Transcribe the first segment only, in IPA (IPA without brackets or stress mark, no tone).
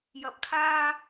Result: j